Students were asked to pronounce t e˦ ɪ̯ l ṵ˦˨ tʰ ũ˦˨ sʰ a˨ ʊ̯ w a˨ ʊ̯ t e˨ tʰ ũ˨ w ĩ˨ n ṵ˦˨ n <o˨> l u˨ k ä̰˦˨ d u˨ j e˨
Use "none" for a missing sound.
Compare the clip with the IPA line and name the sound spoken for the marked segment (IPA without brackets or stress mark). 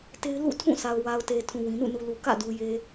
u˨